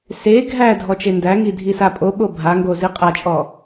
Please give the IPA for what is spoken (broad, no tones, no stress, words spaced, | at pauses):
se ɡʱæ dʱɔt͡ʃendæŋi dʱisapʼo ɓobʱaŋɡo ziqʼat͡ʃʼɔ